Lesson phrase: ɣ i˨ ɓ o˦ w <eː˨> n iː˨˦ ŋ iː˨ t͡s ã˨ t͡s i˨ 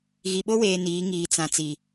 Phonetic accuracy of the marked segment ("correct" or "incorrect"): correct